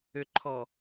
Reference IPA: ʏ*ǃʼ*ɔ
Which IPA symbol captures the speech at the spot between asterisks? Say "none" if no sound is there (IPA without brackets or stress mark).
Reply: ǃʰ